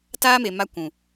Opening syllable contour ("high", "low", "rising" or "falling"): high